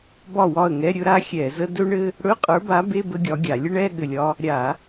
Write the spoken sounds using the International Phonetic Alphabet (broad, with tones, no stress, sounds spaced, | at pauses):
b ɒ˥˩ w ɒ˥˩ ə̯ ŋ ɛ˧˥˧ ɾʲ ɵ˥ ɾ a˥ xʲ ɛ˧˩˧ z ə˥ d ɵ˥ ɳ ɘ˥ | ɽ ɵ˧˥˧ qʼ ə˞˨˥ b a˨˥ b e˧˥˧ b ə˥ ɡʲ ɒ˨˥ ɡʲ a˧˩˧ lʲ ə˥ ɳ ɛ˧˥˧ ɠ ɘ˥˩ lʲ ɒ˥ | ɾʲ a˧˩˧